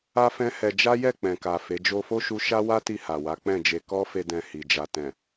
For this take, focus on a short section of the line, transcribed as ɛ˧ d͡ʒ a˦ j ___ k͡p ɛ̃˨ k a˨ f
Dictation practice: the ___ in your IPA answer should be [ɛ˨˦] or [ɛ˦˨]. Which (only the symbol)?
ɛ˦˨